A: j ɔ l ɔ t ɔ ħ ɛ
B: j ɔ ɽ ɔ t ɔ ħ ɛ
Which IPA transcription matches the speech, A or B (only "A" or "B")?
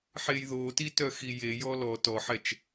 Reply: A